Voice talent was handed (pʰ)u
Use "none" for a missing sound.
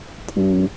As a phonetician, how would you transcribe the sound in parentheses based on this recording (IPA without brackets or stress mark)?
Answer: pʰ